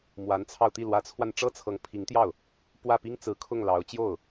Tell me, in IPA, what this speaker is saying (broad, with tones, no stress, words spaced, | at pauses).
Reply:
mwa˧˥nt͡sʰɑ˧ʊ̯t̪i˥˩ lwä˧˥t͡sʰwa˧n ʈ͡ʂɤ˥t͡sʰɤ˧˥ŋpʰi˧˥ŋt̪jɑ˥˩ʊ̯ | pwä˥˩pi˥ŋt͡sɹ̩˧˥kʰʊ˥˩ŋ lɑ˧˥ʊ̯ t͡ɕjo˥˩ʊ̯